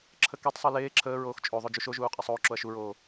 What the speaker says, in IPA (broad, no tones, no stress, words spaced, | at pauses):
ǁʰəketˤsˤo leː ǁʰəːɹoːx t͡ʃʼoðˤo d͡ʒuʃoʒuː qʼɛsˤoːǁoɐ̯ ʃuɹoː